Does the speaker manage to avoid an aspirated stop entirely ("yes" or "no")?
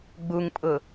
yes